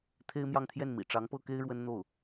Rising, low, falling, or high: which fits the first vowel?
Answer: high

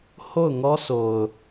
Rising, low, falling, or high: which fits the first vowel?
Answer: falling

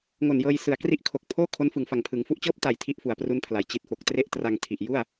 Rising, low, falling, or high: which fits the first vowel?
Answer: low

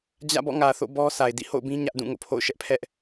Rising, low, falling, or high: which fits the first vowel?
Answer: falling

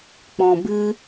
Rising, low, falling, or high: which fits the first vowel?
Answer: low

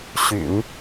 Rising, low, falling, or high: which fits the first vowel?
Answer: low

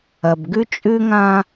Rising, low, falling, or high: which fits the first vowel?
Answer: low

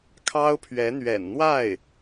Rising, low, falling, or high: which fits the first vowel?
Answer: high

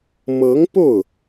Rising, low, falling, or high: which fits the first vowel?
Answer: rising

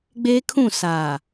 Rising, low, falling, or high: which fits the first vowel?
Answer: high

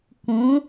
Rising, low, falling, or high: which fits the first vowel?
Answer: rising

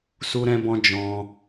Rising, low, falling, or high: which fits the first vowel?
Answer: high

